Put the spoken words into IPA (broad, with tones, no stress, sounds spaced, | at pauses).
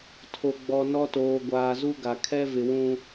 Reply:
tʰ o˨ ɡ͡b ɔ˨ n ɔ˦ t oː˨ ɡʷ aː˨ z u˦ ɡ a˨ kʰ ɛ˦ v ɪ˨ w ũ˦